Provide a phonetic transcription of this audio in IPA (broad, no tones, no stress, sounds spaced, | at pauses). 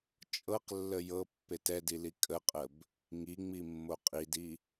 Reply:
t͡ʃʼ ɤ q lː ə j ɤ pː e t ɛ d i l i kʼ ə qʼ ə b | ŋ i ŋ͡m i mː o qʼ i d i